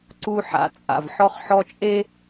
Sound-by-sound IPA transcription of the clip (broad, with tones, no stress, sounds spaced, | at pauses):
ǀ u˦ ħ a̰˨ t͡sʼ a̰˨ v ħ ɔ˦ χ ħ ɔ˦ t͡ʃʼ e˦